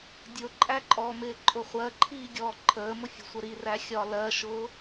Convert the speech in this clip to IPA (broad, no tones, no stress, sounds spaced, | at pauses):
dʲ ʊ ǃʼ æ ǃʼ ɔ m ɪː ǃʼ ʊ χʷ ɜ ǃʰ iː ɡʲ ɔː ǃʰ əː m ʊ fʲ ə̤ sʷ ə ɾ i r æ xʲ ɒ l ɜ ʃ ʊː